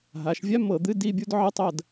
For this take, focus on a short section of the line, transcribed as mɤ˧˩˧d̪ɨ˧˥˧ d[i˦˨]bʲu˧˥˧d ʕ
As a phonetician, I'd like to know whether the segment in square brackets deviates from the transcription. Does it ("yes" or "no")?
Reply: no